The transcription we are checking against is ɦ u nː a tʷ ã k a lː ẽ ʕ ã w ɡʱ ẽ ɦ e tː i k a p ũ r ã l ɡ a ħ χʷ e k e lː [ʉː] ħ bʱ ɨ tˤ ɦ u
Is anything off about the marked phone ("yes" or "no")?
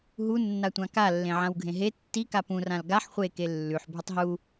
yes